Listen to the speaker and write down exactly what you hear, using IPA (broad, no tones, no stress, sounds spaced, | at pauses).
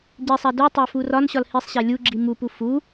ɟ e sˤ æ d u tˤ æ f u r ɒ n ɕ ɒ l h i sˤ ɕ æ lʲ u ɡ͡ǁ i m u p u f u